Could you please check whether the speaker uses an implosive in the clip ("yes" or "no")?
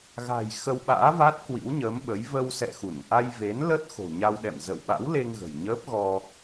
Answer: yes